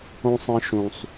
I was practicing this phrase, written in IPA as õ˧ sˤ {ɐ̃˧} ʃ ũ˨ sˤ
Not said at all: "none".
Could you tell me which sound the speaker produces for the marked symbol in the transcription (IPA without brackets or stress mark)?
ɐ̃˧